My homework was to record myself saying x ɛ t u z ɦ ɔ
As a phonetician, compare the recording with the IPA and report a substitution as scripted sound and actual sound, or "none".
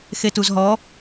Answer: ɛ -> e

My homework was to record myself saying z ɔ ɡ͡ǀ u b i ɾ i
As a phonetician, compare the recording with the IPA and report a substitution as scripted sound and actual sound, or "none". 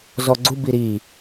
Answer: none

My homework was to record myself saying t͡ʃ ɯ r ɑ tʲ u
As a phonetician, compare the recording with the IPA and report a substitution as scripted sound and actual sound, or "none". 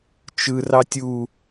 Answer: none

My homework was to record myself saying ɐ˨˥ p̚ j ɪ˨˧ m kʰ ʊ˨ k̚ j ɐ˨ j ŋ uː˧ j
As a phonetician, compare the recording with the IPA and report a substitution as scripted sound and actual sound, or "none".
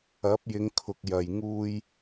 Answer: m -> ŋ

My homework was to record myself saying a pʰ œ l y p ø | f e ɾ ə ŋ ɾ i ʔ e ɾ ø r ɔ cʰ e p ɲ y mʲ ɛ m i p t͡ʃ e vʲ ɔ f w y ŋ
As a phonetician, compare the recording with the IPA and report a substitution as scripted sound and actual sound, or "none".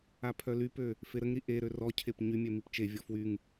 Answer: none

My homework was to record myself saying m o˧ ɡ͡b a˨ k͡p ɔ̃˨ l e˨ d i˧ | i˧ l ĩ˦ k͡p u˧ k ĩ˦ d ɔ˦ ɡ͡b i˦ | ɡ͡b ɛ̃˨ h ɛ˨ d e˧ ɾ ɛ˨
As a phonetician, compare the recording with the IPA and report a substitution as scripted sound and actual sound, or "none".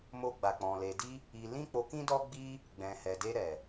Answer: u˧ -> o˧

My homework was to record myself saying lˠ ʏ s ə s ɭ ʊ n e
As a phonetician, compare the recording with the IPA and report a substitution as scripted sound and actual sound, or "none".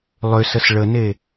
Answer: ʊ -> ə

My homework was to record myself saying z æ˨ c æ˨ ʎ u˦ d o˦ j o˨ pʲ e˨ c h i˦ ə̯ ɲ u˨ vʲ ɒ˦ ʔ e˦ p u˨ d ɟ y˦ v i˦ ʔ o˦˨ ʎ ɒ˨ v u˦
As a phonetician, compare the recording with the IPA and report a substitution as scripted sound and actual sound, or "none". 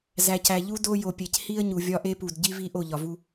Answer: y˦ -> i˦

